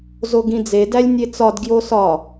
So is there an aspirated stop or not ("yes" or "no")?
no